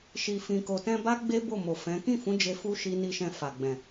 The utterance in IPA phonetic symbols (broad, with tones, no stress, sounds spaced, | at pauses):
ʃ i˨ f ĩ˨ k o˨ t ɛ̃˧ b a˦ ɡ͡b e˦ b o˦˨ m o˨ f ɛ̃˨˦ k ĩ˦˨ f ũ˨˦ d͡ʒ e˧ f u˦ ʃ i˦ n i˦ ʃ ɛ̃˧ f a˨ ɡ͡b ɛ̃˨